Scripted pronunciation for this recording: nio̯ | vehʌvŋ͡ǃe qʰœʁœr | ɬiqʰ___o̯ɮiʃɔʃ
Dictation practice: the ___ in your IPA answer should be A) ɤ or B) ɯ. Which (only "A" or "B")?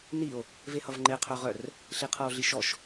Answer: A